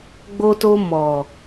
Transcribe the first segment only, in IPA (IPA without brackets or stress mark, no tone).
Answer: ɡ͡b